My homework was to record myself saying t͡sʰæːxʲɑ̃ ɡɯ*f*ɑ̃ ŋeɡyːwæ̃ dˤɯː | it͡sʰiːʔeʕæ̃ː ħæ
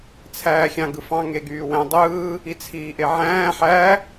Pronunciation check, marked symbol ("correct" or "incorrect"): correct